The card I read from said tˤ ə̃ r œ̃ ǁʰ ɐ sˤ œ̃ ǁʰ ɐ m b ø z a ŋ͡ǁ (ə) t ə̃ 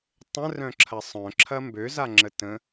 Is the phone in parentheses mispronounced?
no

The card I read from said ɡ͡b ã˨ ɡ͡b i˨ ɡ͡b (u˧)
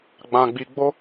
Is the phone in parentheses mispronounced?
yes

